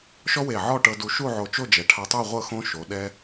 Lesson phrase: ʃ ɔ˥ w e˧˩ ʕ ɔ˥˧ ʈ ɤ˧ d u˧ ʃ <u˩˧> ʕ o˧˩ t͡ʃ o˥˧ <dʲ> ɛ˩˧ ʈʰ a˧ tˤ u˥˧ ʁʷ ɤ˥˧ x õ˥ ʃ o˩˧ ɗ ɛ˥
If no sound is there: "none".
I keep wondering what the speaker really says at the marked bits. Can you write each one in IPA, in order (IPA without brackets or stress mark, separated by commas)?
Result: u˥˧, d͡ʒ